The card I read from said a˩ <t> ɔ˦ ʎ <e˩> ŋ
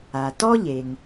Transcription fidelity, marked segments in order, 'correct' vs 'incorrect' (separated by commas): correct, correct